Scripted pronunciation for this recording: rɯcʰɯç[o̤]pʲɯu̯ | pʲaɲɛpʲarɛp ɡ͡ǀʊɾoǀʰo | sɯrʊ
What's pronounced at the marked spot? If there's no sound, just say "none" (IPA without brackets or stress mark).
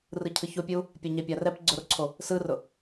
o